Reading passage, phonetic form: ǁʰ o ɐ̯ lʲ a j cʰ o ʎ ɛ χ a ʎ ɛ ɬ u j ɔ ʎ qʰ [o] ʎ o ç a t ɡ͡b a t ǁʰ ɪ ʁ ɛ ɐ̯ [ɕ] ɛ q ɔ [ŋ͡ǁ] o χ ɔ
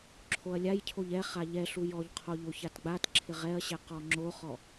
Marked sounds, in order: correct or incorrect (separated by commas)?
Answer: correct, correct, correct